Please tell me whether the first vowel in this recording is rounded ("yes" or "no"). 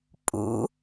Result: yes